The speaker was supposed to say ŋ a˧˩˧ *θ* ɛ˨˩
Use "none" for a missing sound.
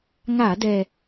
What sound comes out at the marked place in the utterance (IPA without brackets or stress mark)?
d